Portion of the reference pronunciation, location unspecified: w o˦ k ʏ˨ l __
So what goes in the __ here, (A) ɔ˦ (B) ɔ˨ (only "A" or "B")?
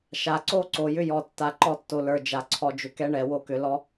A